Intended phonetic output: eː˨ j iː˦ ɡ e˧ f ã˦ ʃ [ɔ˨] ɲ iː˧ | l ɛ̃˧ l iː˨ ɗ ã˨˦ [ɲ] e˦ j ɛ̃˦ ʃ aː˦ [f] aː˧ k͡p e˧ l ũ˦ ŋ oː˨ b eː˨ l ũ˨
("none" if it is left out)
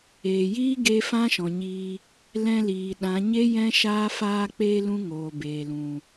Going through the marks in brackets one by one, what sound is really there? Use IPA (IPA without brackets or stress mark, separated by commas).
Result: ɔ̃˨, ɲ, f